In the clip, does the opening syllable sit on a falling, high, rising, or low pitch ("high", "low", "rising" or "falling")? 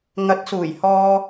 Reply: rising